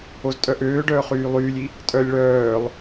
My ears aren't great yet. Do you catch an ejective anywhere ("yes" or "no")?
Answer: yes